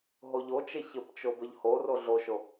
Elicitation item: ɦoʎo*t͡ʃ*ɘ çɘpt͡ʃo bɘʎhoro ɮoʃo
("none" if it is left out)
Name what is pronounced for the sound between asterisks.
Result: t͡ʃ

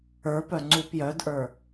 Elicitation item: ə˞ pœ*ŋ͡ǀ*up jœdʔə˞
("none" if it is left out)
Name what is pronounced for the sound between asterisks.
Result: ŋ͡ǀ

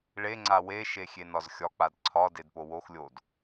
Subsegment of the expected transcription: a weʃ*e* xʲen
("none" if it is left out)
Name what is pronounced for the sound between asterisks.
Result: e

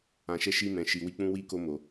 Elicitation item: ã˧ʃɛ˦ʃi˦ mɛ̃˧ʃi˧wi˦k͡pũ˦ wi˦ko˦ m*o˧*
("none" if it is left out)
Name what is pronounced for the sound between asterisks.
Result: o˧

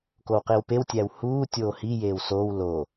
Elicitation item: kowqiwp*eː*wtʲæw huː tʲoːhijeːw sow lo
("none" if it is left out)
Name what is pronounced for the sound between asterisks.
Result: e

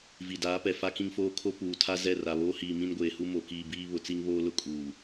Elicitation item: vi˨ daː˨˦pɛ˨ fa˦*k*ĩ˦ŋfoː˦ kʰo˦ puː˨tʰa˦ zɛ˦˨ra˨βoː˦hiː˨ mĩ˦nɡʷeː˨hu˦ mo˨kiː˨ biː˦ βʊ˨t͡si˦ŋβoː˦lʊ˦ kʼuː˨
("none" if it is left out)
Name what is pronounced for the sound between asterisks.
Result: k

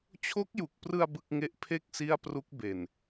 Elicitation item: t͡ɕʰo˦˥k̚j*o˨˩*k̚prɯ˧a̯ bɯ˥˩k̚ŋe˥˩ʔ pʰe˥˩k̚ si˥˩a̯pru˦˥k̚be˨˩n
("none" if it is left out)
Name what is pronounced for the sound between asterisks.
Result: u˨˩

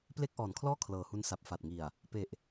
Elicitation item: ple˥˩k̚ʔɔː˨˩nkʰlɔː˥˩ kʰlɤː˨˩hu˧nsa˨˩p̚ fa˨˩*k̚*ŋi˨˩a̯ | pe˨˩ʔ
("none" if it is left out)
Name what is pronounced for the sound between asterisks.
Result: t̚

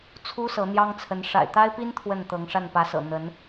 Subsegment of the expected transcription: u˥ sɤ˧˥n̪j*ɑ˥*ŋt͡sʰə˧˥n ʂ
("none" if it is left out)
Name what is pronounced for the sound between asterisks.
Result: ɑ˥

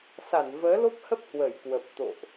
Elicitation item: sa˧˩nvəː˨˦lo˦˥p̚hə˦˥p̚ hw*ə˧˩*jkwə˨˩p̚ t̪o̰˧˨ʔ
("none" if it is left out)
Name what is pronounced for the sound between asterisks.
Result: ə˧˩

